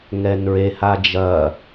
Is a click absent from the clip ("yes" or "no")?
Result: yes